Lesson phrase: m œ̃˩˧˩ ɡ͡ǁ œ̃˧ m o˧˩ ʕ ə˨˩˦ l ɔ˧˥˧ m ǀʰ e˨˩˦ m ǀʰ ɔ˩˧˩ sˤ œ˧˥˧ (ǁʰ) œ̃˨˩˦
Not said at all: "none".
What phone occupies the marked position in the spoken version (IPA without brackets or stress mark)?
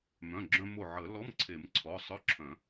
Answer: ǁʰ